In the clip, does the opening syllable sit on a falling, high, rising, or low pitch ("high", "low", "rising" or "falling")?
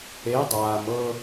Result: rising